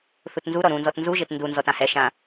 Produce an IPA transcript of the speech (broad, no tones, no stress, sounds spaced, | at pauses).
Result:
θ u t n z u ɾ ɔ ɾ ũ n z ɔ t n z u ʒ e t n d u n z ɔ t ã h ɛ ʃ ã